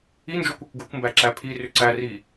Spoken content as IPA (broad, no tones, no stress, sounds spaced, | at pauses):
i n d͡ʒ o kʷ o kʷ ɡ o kʷ m b æ ǁ æ pʰ i r ʏ ǀ æ r i